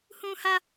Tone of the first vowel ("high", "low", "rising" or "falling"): high